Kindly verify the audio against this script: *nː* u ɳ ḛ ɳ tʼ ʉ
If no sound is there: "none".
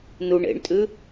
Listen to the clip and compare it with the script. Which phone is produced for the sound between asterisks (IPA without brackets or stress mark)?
n